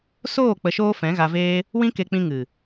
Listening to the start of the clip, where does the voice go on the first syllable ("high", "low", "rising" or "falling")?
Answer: falling